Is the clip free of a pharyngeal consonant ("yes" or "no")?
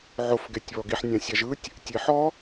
no